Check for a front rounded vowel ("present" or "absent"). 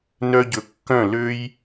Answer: present